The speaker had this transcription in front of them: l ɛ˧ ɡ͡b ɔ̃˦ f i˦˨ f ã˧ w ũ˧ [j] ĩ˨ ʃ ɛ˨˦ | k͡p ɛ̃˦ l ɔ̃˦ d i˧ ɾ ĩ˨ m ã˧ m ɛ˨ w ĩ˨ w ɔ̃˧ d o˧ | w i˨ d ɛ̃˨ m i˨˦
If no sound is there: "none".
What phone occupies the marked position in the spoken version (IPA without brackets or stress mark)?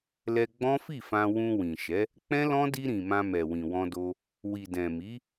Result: w